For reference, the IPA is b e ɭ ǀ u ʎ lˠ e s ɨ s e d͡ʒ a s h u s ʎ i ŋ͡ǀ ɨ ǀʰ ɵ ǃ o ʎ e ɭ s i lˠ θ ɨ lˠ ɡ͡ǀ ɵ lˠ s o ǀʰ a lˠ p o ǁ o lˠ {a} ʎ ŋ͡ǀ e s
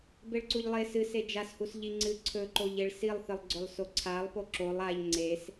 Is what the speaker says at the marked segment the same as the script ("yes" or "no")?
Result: yes